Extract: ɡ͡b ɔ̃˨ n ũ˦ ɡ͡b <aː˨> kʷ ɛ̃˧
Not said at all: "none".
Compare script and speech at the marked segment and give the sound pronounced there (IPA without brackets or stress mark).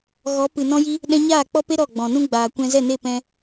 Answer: aː˨